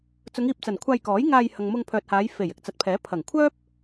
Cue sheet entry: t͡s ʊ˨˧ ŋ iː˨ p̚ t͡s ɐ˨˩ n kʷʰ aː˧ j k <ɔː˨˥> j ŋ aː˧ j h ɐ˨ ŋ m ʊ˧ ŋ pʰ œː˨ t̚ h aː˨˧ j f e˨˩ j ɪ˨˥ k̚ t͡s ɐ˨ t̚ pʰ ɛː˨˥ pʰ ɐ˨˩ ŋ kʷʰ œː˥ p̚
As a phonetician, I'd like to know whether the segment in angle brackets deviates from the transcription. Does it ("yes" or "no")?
no